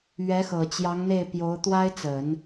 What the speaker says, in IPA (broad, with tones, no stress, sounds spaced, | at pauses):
ɥ ɛ˧˥ x ɤ˨˩ t͡ɕ j ɑ˧˥ ŋ n̪ e˥˩ ɪ̯ p j o˧˥ ʊ̯ t̪ w a˥ ɪ̯ t͡s ə˨˩˦ n